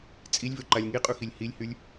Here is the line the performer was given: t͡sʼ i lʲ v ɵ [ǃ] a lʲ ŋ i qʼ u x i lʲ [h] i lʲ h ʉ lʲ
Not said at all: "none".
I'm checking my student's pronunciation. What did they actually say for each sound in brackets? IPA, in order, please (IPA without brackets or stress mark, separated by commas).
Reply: ǃ, h